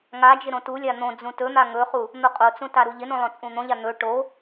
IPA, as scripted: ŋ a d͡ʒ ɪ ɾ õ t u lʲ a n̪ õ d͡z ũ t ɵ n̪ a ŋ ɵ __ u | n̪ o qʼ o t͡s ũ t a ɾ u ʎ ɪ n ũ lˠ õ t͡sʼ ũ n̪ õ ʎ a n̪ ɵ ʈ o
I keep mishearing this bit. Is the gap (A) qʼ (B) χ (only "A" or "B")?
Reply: B